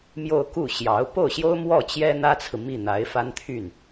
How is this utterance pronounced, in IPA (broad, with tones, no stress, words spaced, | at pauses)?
mjo˥˧ʊ̯ ku˥˩ɕjɑ˧˥ʊ̯ po˥˩ʊ̯ɕjo˥ʊ̯mwɔ˥˩t͡ɕjɛ˥ n̪ä˥t͡sʰɹ̩˨mi˥˩ n̪a˧˥ɪ̯fa˥nt̪ʰy˥˩n